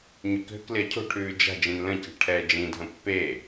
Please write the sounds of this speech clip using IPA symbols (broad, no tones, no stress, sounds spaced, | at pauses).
ɲ ʉ k ɦ ʏ k l ɪ ɐ̯ cʰ o̤ ʈʰ ʉː d͡ʒ a̤ d͡ʒ ĩ n l ə̃ c e̤ ʈʰ ɛː d͡ʒ ĩ dʱ ə̃ pː e